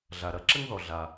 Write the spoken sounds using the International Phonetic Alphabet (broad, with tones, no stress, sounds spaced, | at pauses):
ɮ a˩ ɾ ɐ˨ ǁ ɘ˥ ŋ ð ɔ˩ ɮ a˩